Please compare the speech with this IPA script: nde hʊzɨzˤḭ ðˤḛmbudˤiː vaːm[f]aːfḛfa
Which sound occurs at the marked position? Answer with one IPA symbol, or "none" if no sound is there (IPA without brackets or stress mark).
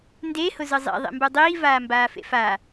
b